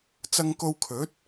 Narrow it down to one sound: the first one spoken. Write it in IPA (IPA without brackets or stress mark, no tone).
t͡s